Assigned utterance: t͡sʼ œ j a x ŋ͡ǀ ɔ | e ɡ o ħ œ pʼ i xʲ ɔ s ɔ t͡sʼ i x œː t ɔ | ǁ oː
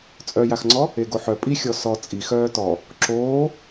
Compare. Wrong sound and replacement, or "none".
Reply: none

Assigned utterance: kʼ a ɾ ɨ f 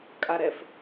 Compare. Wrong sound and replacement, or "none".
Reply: ɨ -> ɛ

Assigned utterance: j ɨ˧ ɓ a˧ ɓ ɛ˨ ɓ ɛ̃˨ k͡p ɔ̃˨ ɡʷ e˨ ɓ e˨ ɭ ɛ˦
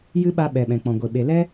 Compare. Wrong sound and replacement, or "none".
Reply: ɭ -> l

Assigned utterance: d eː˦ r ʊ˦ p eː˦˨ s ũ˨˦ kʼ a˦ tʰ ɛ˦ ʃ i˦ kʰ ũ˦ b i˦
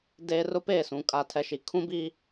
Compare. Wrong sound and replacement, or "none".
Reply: none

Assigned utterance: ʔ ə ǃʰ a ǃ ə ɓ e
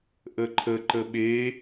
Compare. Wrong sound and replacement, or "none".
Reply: a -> ə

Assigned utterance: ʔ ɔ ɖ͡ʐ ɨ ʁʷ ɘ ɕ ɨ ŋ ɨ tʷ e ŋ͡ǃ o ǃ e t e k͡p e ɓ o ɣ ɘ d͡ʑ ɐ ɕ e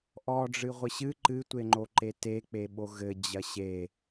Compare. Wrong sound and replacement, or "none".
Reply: ŋ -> ǃ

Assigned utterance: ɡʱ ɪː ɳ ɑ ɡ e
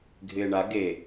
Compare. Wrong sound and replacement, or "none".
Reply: ɑ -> a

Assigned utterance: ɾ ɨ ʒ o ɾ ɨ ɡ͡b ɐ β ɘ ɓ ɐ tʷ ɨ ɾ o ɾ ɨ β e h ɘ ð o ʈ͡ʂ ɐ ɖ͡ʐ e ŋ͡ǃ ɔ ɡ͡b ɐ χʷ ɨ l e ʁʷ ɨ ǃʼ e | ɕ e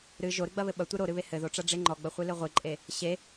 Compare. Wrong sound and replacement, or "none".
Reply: none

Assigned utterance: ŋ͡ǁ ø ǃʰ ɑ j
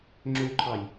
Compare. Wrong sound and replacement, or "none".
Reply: none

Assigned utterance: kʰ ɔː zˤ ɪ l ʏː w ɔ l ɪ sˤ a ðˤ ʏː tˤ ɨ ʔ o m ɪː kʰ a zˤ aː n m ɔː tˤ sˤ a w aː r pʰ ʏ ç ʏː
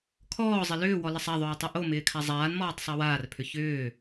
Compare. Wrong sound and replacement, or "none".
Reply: none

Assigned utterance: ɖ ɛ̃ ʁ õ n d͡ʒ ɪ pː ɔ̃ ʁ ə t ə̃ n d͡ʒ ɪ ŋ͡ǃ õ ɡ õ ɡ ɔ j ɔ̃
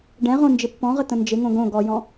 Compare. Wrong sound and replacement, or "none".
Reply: ŋ͡ǃ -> ŋ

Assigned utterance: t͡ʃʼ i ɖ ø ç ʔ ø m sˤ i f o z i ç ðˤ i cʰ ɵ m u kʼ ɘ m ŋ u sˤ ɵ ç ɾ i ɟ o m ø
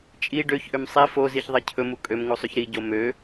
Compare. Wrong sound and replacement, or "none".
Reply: ɘ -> ø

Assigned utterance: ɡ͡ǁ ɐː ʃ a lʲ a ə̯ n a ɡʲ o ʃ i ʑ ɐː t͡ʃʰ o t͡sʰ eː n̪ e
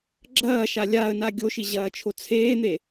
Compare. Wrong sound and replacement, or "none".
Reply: none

